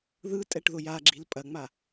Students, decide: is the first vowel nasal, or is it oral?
oral